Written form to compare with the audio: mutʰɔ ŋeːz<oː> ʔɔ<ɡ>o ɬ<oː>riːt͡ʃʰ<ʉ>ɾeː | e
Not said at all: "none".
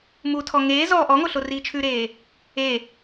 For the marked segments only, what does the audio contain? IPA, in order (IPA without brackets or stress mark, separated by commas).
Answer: ɔː, ŋ, o, ʉ